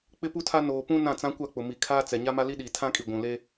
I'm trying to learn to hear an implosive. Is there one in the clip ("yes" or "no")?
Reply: yes